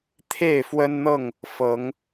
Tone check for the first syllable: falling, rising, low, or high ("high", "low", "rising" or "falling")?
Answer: falling